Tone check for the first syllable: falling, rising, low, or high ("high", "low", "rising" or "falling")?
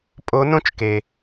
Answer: rising